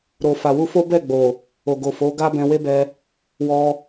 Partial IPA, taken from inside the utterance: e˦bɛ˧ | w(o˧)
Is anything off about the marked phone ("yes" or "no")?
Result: yes